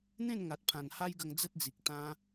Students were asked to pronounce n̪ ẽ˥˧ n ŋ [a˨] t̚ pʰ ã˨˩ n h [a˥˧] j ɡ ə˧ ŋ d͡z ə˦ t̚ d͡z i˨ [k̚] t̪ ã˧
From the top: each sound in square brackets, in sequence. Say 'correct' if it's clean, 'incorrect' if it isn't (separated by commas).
correct, incorrect, correct